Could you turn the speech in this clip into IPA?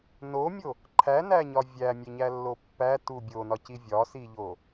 n o mʲ o | ǃʰ æ n æ ɲ ɒ vʲ æ mʲ e ɲ æ lː o pː æ t u bʲ o n ɒ c i vʲ ɒ s i ʎ o

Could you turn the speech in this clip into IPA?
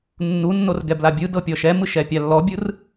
nː u nː o r ɡ ɛ b l a bʲ ɯ d ɤ pʲ ɔ ʃ ɛ m ɯ ʃ ɛ pʲ a lː ɔ bʲ ɯ r

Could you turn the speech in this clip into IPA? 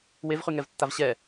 w e v χ y ŋ ɛ v tː a v ɕ ɛ

